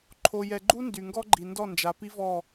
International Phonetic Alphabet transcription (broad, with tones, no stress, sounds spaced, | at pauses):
ǃʰ o˨ j ɛ˨ ɡ͡ǃ u˦ n d y˨ ŋ ɡ ɔ˦ ɡ͡ǃ i˨ n d ɔ˦˨ n d͡ʒ a˨ p i˦ v ɔ˦˨